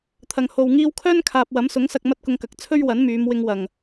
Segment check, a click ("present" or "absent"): absent